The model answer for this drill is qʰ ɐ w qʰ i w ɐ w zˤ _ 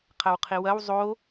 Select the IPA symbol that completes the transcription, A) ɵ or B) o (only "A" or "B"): B